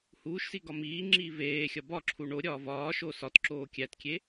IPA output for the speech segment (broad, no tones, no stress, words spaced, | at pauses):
huːʃsi ɡɒmiːŋ͡ǁiː veːxʲɒ bɒǁʰu ɳo ɾʲɒːvɒːʃo sɒtǁoː kʲætkʲe